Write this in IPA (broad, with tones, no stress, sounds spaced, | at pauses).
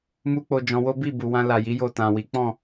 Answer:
m u˦ k͡p o˧ d͡ʒ ɔ̃˧ w o˦ b i˦˨ b u˨ w ã˧ l a˨ j i˨˦ j o˦˨ t ã˨ w i˨˦ k͡p ɔ̃˦˨